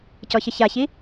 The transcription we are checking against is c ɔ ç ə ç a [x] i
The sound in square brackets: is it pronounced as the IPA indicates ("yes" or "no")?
no